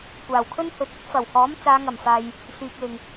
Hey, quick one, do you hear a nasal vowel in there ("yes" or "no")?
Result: no